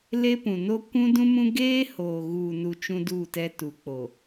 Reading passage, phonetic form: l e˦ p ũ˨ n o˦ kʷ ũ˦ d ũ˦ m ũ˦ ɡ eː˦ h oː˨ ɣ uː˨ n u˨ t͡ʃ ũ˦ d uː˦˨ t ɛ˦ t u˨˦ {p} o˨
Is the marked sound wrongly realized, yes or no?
yes